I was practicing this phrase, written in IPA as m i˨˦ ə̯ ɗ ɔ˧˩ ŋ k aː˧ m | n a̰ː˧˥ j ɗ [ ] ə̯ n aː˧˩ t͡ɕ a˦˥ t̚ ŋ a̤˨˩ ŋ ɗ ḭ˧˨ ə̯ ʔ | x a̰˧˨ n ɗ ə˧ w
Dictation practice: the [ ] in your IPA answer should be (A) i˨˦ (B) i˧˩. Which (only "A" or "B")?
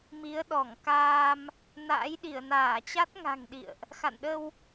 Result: B